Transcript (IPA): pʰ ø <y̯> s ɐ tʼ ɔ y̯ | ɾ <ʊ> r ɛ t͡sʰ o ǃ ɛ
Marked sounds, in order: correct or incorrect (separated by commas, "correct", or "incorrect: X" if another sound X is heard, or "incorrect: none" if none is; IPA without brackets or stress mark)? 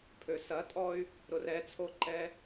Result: incorrect: none, correct